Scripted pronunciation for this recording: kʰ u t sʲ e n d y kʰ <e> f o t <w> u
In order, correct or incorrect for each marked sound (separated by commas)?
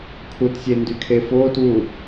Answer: correct, correct